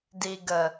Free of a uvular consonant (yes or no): yes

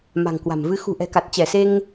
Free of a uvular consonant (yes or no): yes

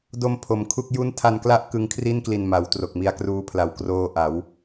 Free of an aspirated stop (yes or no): no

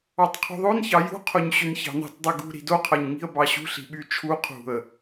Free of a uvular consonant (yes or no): no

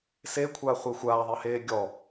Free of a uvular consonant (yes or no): no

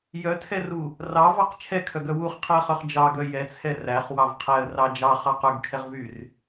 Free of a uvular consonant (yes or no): no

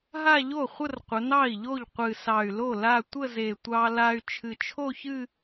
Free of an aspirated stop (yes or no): no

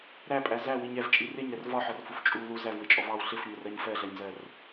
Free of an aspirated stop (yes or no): yes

